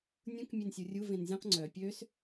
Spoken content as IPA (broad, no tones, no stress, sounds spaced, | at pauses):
nʲ ũ k mʲ e n sʲ u rʲ u v ẽ n zʲ ũ q ŋ͡ǀ œ pʲ ø s